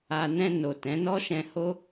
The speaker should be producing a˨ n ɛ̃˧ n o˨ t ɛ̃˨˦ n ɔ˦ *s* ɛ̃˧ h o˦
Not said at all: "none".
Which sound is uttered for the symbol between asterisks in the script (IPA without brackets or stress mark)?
ʃ